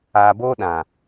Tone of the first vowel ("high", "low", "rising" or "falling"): low